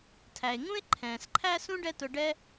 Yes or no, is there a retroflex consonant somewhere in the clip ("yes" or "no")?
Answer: yes